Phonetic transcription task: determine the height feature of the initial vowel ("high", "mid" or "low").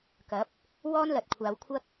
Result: low